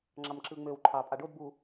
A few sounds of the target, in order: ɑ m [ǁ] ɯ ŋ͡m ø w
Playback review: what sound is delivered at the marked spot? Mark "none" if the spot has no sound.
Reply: ǁ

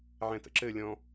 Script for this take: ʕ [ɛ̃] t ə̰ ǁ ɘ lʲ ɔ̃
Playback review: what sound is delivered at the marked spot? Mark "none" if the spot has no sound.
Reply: ɛ̃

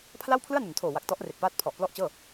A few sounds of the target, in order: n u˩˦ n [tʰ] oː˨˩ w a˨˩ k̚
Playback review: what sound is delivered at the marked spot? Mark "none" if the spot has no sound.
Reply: tʰ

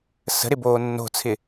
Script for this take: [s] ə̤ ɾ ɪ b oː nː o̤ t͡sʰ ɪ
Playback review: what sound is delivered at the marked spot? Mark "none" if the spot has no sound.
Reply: s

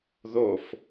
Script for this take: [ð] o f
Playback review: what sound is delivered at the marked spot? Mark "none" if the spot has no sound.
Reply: ð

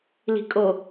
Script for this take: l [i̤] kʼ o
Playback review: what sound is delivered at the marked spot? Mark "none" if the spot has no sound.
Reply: i̤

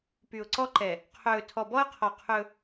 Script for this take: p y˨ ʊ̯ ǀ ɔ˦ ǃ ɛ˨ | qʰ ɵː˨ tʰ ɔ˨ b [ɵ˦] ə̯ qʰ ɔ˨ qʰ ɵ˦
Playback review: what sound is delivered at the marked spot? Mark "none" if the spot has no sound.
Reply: ɔ˦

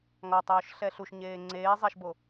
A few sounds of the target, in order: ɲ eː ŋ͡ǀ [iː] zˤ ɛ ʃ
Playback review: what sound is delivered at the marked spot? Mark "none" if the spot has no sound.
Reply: eː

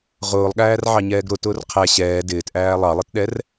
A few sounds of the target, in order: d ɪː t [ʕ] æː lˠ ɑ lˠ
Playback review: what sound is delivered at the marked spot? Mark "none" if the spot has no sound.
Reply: ʔ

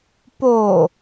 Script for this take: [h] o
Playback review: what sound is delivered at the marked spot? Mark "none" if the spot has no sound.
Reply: p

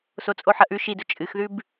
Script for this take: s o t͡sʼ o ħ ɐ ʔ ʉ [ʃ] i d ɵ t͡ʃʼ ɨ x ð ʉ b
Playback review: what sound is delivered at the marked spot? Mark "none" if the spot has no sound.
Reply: ʃ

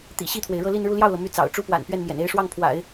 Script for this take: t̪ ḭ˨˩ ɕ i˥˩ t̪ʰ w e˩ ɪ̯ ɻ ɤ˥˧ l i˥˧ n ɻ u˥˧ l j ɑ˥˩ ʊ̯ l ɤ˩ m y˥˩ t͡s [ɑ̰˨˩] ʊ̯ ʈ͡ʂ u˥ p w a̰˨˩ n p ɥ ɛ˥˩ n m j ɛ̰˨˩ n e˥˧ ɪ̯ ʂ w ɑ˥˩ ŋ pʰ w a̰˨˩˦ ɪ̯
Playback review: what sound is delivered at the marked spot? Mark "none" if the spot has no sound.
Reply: ɑ̰˨˩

